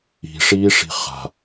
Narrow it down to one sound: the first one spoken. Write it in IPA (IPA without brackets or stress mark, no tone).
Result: i̤